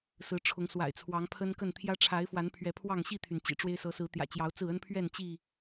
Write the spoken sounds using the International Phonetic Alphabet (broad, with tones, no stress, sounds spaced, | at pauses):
s ɹ̩˨˦ ʈ͡ʂʰ ʊ˨˦ ŋ s w a̰˨˩ ɪ̯ t͡sʰ w ɑ˨˦ ŋ pʰ ə˦ n k ə˥˨ n t̪ʰ j ä˦ ʈ͡ʂʰ a˨˦ ɪ̯ f w a˨˦ n pʰ ɥ ɛ˨˦ pʰ w ɑ˥˨ ŋ ɕ i˥˨ t̪ʰ y˩ n t͡ɕ ḭ˨˩ ʈ͡ʂ w e˦ ɪ̯ s ɤ˨˦ s ɹ̩˨˦ t̪ j ä̰˨˩ t͡ɕ j ɑ˨˦ ʊ̯ t͡s ɹ̩˥˨ ə˦ n pʰ ɥ ɛ˥˨ n t͡ɕ i˥˨